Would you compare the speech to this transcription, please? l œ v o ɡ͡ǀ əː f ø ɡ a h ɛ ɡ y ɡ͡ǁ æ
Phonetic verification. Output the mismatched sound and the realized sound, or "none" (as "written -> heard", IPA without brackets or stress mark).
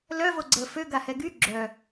æ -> œ